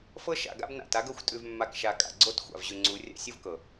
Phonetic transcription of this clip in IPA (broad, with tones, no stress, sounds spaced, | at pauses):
f ɤ˦ ʃ a̰˨ ɡ a̰˦ b n a̰˨ t a˦ ɡ ɤ˦˨ xʷ tʼ ʉ˨ v mː a˨ k ʃ a˨ kʼ a̰˨ ɡ͡ǀ o˦ t xʷ a̰˨ v ʑ ʉ˨ ŋ͡ǀ u˨˦ rʲ a̰˦ sʲ u˦ v k ɤ˨